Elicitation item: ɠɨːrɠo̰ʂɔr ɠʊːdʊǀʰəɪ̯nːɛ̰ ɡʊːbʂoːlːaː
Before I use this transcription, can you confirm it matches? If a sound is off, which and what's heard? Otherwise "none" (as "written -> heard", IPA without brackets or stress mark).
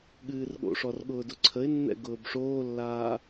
none